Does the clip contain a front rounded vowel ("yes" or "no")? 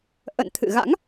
no